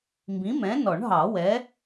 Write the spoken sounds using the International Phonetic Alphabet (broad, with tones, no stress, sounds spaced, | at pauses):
m b ĩ˨˥ m ɛ̃˨˥ n ɔ˨˩˦ ɳ ɦ ɑ˨˩˦ w ɛ˨˥